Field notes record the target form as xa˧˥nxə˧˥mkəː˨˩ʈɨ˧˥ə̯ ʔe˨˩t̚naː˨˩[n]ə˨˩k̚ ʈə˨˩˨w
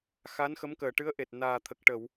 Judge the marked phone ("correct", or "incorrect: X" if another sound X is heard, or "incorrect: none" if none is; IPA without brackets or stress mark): incorrect: t̪ʰ